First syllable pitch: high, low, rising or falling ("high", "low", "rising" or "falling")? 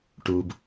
low